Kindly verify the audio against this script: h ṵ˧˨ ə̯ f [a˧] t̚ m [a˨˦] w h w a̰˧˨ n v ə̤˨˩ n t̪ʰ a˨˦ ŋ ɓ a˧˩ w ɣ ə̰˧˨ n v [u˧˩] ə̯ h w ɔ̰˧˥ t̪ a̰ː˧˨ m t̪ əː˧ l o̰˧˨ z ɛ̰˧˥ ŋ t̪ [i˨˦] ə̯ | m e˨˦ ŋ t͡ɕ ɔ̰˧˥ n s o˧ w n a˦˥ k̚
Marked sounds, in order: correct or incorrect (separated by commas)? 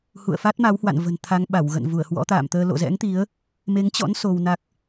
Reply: incorrect, correct, correct, correct